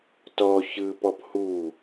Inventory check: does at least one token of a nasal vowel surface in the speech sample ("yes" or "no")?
no